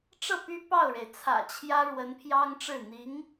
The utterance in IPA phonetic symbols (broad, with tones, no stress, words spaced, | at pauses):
ʈ͡ʂɤ˥˩py˥ pɑ˥˩ʊ̯ɻe˩ɪ̯ t͡sʰä̰˨˩t͡ɕʰjä˥ ɻwə˧˥npʰjɑ˥ŋʈ͡ʂɻ̩˥˩ n̪i˧˥ŋ